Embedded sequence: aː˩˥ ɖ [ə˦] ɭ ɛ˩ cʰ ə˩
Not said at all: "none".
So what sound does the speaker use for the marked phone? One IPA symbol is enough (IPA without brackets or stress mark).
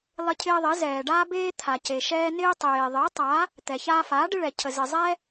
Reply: ɪ˦